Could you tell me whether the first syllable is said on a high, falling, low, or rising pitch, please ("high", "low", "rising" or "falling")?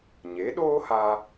rising